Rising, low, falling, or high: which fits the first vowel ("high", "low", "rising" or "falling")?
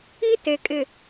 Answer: high